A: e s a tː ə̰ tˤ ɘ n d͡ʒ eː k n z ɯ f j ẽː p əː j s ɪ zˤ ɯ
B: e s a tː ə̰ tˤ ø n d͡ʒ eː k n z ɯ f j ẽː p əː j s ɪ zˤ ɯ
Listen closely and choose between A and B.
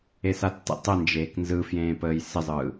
A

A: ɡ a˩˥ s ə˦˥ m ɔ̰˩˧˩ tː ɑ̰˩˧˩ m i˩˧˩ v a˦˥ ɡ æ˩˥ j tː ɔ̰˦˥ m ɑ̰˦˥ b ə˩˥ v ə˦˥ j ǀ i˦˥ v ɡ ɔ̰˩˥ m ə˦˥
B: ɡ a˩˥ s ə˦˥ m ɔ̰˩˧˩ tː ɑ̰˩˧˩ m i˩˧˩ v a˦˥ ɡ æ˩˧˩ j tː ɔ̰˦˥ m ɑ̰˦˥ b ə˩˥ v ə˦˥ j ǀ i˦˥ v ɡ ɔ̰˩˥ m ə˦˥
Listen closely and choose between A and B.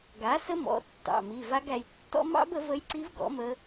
B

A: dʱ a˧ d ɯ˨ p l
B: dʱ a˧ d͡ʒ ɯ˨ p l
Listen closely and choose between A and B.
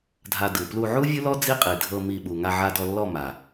A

